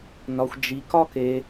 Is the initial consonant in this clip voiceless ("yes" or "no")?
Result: no